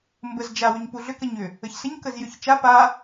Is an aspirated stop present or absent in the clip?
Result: absent